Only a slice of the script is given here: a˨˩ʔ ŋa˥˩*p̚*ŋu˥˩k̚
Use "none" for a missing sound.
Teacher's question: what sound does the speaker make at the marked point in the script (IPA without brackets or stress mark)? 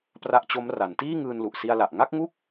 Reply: k̚